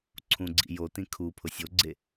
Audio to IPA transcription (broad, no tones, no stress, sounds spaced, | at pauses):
ǀʰ ũ ɡ͡ǀ ḭ j o t ĩ kʰ u pʰ ʊ sʲ o ɡ͡ǀ e